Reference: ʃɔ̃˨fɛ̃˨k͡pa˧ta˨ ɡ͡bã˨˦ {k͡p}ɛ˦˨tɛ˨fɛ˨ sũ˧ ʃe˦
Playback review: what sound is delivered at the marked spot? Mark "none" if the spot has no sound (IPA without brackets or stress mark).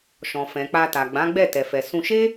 ɡ͡b